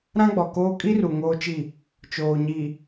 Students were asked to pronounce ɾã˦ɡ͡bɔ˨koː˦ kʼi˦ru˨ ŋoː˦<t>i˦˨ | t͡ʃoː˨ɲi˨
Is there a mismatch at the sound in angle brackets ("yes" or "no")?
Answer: yes